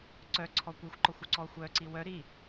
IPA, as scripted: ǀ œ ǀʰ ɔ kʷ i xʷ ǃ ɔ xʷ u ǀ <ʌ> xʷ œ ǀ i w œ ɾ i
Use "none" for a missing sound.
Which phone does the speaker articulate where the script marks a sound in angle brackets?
ɔ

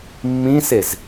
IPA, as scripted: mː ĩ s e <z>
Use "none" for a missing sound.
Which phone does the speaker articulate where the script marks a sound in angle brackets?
z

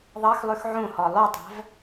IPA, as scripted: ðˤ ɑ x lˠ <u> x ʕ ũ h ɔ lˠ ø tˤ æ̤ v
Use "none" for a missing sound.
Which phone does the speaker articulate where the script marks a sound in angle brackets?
ʉ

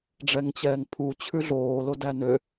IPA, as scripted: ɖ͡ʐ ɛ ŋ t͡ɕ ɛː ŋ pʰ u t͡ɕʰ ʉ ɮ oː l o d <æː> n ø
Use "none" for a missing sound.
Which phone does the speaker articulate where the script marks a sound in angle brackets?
æ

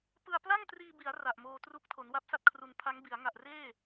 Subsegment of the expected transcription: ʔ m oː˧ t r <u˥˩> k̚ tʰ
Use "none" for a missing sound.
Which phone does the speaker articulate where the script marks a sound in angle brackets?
u˦˥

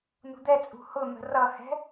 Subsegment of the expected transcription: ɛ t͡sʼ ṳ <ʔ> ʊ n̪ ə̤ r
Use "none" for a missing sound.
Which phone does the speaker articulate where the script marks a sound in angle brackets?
h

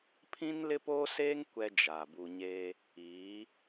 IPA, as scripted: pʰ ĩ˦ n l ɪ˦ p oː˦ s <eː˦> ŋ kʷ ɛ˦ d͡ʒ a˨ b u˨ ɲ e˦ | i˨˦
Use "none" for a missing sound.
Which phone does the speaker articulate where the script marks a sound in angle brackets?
eː˦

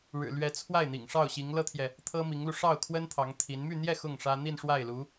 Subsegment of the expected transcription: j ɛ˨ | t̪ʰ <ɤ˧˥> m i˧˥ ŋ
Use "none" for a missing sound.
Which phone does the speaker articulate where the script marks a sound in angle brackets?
ɤ˥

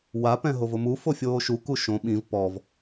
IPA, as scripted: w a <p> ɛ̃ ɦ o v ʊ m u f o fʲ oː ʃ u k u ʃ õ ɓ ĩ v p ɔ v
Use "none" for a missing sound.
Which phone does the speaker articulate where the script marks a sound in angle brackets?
p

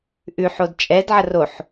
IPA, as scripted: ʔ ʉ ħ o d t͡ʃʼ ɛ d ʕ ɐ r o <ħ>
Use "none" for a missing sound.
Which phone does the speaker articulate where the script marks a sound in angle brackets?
ħ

